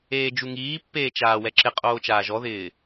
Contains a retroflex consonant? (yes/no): no